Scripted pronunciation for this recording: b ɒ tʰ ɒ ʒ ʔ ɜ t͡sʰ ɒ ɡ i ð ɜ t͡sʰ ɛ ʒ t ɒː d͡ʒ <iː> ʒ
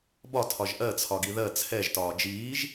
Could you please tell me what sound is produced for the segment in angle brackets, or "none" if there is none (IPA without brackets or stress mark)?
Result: iː